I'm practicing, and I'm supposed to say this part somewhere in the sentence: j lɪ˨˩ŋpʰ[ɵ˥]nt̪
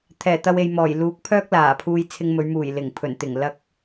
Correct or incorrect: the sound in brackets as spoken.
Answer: incorrect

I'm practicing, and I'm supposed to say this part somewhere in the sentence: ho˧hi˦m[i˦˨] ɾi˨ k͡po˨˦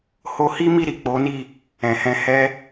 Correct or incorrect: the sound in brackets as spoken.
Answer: correct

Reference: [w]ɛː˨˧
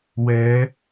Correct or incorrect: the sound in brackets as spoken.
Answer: correct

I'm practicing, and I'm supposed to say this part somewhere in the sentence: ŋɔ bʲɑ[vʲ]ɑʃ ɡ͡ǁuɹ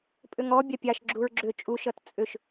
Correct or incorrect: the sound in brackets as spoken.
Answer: incorrect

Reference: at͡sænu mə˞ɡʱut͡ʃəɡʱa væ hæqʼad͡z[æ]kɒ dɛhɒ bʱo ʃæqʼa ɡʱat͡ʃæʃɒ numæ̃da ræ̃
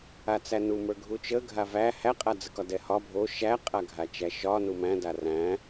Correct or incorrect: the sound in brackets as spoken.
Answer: incorrect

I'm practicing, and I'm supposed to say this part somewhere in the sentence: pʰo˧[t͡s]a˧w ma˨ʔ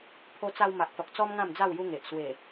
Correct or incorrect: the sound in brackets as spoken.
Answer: correct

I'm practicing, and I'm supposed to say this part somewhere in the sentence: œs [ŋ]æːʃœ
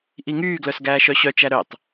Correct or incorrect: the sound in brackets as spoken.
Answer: incorrect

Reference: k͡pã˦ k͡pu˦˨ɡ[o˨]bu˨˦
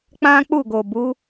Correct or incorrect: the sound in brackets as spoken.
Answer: correct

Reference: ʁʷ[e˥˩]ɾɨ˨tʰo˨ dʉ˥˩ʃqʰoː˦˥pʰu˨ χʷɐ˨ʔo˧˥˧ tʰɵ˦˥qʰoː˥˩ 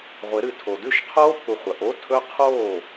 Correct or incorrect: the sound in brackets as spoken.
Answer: incorrect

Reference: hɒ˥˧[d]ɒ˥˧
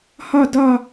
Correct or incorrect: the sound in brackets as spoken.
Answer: correct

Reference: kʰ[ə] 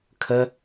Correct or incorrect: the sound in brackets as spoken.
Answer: correct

